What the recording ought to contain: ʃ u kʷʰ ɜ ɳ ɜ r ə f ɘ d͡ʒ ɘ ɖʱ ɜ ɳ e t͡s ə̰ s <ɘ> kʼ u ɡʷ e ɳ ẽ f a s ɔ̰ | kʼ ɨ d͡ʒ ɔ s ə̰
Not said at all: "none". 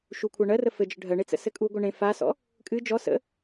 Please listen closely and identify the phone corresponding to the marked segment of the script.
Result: ɘ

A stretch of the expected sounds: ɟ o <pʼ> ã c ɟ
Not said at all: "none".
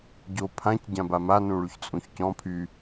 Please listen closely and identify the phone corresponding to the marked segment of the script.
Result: pʰ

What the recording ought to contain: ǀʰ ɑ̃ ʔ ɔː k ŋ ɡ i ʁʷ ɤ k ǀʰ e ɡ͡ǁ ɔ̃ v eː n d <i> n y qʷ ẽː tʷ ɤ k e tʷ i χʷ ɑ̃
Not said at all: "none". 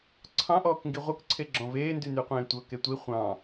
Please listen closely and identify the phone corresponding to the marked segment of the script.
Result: y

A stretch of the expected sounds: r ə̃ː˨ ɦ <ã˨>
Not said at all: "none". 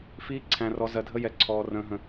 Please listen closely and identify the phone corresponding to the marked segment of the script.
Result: ə̃˨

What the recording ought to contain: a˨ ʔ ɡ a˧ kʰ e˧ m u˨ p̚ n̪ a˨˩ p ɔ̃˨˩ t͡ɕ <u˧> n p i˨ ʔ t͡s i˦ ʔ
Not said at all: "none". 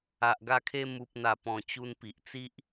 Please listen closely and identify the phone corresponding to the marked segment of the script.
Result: u˧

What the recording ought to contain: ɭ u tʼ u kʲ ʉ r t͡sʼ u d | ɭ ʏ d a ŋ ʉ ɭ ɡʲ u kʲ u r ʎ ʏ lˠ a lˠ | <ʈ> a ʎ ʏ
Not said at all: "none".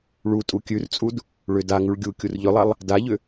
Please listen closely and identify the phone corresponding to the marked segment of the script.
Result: d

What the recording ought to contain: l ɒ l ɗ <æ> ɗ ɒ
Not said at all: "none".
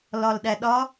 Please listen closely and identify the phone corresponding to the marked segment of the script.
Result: æ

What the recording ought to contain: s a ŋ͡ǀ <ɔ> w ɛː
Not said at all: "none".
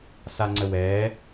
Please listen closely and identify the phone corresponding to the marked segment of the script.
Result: ə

